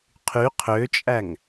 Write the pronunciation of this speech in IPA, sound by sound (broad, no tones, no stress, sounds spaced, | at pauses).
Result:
qʰ y qʰ ø t͡ʃʼ æ ŋ